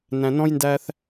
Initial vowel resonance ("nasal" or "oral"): nasal